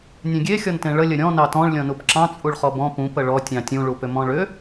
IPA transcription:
nʲ ẽ ɡʲ e xʲ ɔ n t ẽ ɭ ə lʲ ə ɾʲ ɔ̃ n ɑ t ɔ̃ ɭ lʲ ɔ̃ n u p ǁ ɑ̃ t͡sʼ u ɭ χ ɔ b ɔ̃ p ũ p ə ɭ ɔ tʲ ɑ̃ tʲ ũ ɭ u p ʏ m ɔ̃ ɭ ʏ

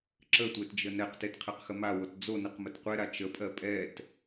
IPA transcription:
ǁ ə tʷ e t d͡ʒ ə n ɛ q t e t qʰ ɛ q x ə m a w o t d͡z o n ə q m ə t qʷ ɛ ɾ a t͡ʃ ə pʼ ɜ pʼ ɛ t

